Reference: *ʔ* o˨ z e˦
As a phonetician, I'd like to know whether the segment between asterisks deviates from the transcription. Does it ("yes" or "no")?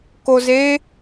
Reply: yes